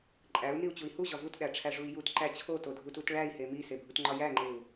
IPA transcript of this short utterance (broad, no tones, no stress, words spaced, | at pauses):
ǃʼæu̯niu̯t͡ɕui̯ huʑɒ vutɗæʈ͡ʂʰæʐui̯ jutǃæ t͡ɕʰotodʱutut ɭæi̯he misebʱutŋ͡ǃɒ jæŋ͡ǃeu̯